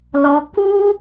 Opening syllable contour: low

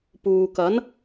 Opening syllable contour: low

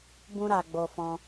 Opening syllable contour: high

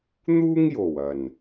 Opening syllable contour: high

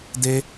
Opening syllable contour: high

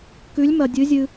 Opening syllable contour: rising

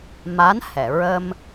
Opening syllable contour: rising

